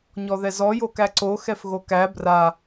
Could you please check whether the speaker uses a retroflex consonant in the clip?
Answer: no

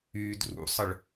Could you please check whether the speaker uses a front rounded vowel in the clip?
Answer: yes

